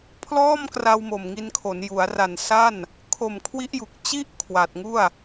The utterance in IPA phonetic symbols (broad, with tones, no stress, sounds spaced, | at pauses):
pʰ l ɔː˥˩ m k r a˧ w m o˨˩ m ŋ i˧ n kʰ o˩˦ n j u˩˦ a̯ r a˨˩ n s a˥˩ n | kʰ o˨˩ m kʰ w i˦˥ ʔ j u˨˩ k̚ t͡ɕ i˥˩ ʔ kʰ w a˨˩ t̚ ŋ u˥˩ a̯